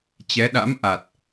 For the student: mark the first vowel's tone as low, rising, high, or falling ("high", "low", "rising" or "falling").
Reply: rising